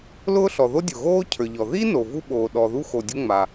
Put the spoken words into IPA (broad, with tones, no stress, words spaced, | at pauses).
lʊː˥ɬɔ˩ ðo˥dʲʊ˩ɣoː˥ cʰə˞˩ʎɔ˩ ði˥no˩ vu˥ɓoː˩ ɗɔ˩ðu˥ xo˩dʲʊ˥ ŋ͡ma˩